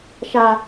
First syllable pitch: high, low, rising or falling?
low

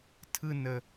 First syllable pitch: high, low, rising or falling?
high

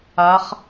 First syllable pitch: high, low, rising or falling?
rising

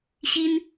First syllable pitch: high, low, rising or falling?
high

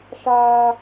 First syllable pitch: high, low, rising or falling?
high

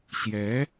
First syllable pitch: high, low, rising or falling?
rising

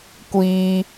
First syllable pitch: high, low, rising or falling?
high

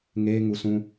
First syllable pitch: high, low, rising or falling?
high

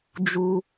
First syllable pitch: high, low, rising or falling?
high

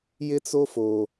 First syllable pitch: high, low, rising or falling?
high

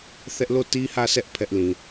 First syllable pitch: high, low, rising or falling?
high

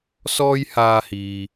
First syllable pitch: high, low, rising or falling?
high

